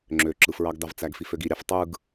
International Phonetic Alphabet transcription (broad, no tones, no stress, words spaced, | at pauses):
ŋ͡ǁø ǁɯfɹɑɡdɑvt͡sæɡ fiføɡiɾʲɑf tˤɯɡ